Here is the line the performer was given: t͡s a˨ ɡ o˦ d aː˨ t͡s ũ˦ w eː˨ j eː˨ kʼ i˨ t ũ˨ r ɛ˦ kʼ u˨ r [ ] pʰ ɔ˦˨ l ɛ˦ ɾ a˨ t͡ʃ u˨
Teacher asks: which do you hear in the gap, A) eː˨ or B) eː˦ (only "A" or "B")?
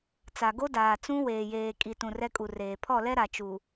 A